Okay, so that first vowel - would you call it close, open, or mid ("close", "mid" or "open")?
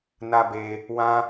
open